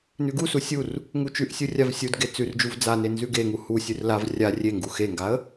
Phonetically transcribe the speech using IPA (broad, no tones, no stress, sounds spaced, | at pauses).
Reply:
n ʉ ɡ u s u sʲ u r | ŋ u t͡ʃ ʉ ʔ sʲ u rʲ a v sʲ u d ɡ e t͡s ʉ r d͡ʒ u v d͡z a n e n z ʉ ɡ e ŋ u h u sʲ ʉ r l a v rʲ a rʲ e ŋ ɡ u x e ŋ ɡ a ə̯